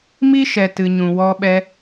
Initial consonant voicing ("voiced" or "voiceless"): voiced